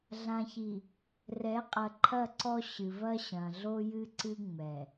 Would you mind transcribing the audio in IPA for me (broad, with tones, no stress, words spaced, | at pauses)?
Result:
ɮã˨çi˨ | rɛ˨˦qʼɐ˨ǃʰɐ˦˨ǀɔ˦ ɕɨ˨vɐ˦ɕɐ̃˨ ɮo˦jɨ˦ǀɨ˦ ŋ͡mɛ˨